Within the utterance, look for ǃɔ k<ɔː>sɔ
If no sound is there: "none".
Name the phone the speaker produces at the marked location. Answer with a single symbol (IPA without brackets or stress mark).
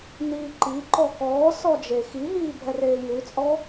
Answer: ɔː